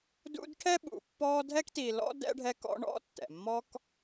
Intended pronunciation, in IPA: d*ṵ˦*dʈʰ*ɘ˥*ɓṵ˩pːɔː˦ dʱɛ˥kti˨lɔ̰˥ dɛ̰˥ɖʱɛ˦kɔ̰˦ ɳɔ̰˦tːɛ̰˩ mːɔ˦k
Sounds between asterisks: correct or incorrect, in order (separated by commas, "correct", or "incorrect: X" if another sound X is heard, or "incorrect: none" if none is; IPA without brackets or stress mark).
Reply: correct, incorrect: ɛ˥